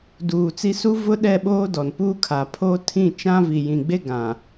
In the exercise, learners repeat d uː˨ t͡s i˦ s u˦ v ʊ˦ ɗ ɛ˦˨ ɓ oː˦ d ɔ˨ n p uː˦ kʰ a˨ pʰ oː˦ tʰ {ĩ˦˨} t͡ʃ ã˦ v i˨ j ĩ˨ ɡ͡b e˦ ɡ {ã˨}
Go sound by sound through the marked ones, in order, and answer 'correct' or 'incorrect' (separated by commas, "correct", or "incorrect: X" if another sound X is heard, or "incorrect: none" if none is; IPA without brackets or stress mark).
correct, correct